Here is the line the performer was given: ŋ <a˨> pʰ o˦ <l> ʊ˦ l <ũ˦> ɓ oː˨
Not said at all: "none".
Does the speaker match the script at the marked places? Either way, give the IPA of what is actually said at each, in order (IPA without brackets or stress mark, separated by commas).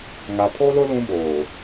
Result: a˨, l, ũ˦